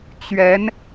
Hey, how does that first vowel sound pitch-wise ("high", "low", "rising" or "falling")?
rising